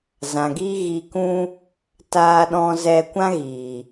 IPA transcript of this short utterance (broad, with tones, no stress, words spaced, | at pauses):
zã˨ɡi˦ ɣi˧kũ˦ | taː˧ɗɔ̃˧zɛ˧ kʷã˦ɣiː˨